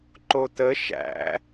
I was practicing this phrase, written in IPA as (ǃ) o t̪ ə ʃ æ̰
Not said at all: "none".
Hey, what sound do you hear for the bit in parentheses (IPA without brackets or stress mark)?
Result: ǃ